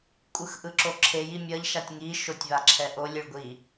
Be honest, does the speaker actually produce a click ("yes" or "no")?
yes